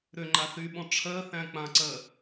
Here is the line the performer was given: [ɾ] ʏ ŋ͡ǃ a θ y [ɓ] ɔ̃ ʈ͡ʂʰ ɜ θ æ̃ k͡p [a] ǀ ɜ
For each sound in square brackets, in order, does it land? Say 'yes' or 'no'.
yes, yes, no

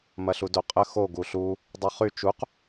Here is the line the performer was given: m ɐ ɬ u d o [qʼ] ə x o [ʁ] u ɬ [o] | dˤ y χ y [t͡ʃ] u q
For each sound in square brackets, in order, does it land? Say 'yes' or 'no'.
yes, no, no, yes

